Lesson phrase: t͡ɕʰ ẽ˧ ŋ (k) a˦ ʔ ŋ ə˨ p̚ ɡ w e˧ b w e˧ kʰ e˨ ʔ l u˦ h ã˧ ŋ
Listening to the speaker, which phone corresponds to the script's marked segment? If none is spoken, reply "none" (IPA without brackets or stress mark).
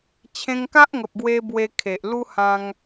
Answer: k